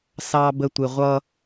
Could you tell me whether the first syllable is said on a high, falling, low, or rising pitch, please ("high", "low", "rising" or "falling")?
high